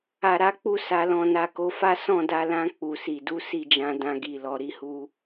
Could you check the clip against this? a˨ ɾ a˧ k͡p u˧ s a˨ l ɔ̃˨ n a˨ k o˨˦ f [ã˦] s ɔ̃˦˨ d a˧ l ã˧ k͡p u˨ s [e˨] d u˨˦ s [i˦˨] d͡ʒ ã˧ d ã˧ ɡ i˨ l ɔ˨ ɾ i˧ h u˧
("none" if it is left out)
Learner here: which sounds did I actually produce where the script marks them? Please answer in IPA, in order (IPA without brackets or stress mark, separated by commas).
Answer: a˦, i˨, i˦˨